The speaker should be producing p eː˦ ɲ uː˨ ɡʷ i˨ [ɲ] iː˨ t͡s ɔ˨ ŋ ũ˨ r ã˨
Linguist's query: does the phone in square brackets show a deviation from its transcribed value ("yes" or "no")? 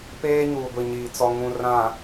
no